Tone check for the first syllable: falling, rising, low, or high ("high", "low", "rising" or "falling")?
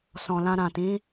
low